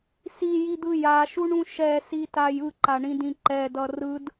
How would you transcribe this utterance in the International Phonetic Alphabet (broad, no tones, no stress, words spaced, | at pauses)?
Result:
sijid̪ɯ jaʃuɳũ ʃɛsitaj ɯǃaɳĩdĩ ǃɛdʌ rɯd